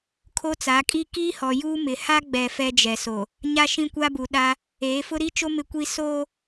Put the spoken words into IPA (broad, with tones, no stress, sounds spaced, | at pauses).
kʰ o˦ t͡s a˨˦ kʼ i˦ k iː˦ h ɔ˨ j uː˦ m ɪ˨ h a˦ ɡ͡b ɛ˨ f ɛ˦ d͡ʒ ɛ˨ s o˨ | ɲ a˦ ʃ ĩ˦ kʷ a˦ b u˨ ɗ a˦ | eː˨˦ f ʊ˦ ɾ i˦ t͡ʃ o˦ m ɪ˦ kʷ i˦ s oː˦